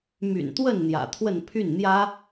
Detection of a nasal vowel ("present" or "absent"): absent